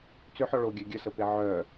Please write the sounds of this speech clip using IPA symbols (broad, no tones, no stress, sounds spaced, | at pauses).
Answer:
t͡s ʏ ħ ɔ ɭ o ɡʲ œ ɡʲ ə s ə p e ʕ œ